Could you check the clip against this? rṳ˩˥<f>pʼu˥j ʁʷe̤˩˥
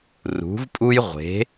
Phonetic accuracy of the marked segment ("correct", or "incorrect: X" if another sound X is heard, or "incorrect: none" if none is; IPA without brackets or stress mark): incorrect: v